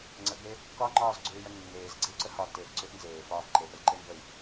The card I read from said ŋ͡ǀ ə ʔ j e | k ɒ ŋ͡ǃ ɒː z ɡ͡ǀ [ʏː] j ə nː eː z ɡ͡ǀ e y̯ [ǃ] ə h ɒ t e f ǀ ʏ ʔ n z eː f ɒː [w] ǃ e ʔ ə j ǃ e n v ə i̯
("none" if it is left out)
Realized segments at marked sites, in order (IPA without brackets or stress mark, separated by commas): ʏː, ǀ, v